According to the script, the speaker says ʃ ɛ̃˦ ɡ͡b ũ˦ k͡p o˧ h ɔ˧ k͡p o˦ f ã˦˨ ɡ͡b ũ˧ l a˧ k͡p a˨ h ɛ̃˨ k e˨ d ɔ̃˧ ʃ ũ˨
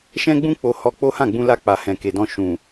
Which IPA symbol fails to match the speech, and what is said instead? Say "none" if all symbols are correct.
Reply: f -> h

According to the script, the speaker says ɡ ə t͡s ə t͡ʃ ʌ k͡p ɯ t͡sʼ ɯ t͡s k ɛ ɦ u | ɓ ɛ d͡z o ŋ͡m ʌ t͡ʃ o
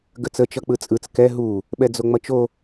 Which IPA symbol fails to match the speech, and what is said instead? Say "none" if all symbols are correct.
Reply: none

